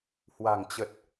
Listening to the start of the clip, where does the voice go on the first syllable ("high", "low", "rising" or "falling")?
low